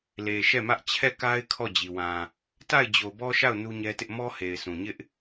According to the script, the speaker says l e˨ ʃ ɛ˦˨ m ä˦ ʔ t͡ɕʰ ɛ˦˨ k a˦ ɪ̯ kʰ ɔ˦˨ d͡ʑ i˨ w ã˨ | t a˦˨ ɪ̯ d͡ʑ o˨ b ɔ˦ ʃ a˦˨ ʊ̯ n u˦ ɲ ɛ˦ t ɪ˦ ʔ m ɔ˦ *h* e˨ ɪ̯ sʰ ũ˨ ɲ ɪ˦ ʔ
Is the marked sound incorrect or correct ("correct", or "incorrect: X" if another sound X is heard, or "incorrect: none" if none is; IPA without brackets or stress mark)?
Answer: correct